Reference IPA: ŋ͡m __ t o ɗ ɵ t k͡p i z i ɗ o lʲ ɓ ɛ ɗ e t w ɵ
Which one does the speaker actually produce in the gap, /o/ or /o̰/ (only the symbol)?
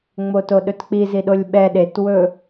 o